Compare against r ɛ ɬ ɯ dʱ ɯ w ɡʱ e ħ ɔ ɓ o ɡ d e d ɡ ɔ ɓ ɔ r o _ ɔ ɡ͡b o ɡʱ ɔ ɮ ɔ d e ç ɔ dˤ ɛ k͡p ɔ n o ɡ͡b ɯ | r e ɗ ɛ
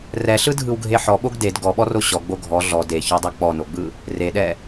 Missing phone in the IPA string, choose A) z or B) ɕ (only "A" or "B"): B